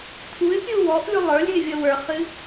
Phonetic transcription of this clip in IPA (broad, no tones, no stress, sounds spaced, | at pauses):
tʰ u ɪ̯ pʲ u w ɔ ʔ lʲ u lˠ ə˞ lʲ ɨ ɪ̯ vʲ ʌ w ə˞ χ ɨ